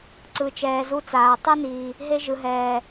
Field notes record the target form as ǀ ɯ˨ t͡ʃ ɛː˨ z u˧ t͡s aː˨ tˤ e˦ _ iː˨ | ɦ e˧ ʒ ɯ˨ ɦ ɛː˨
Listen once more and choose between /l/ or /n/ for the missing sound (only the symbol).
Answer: n